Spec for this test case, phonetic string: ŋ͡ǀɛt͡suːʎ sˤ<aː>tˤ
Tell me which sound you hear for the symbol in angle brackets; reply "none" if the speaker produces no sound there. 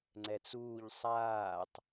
aː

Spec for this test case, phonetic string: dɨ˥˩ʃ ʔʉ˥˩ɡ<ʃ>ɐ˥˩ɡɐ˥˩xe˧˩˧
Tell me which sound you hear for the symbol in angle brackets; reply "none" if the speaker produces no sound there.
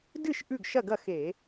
ʃ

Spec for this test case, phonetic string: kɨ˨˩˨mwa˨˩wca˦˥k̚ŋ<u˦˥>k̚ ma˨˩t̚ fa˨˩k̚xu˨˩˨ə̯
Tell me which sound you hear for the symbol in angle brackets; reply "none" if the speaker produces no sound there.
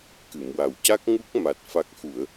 u˦˥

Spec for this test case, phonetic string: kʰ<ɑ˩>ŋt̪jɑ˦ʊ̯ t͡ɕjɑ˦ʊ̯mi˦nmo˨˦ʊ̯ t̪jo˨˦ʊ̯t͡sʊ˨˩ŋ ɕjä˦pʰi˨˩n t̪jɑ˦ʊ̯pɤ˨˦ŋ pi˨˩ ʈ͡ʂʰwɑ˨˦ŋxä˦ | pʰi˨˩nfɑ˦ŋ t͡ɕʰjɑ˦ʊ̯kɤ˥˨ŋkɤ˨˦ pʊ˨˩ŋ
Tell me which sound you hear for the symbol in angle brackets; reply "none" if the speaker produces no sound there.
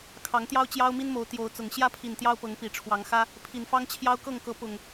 ɑ˨˦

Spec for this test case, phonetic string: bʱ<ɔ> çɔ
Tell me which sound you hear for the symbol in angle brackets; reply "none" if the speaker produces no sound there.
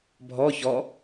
ɔ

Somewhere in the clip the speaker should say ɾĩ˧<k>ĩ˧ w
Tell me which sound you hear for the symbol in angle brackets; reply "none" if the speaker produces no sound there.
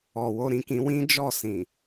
k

